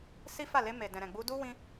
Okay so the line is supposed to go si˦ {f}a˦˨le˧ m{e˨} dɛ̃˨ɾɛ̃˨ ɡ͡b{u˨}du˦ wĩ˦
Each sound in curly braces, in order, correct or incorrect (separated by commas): correct, correct, incorrect